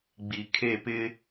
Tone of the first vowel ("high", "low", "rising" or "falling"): low